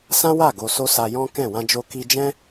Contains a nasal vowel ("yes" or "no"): yes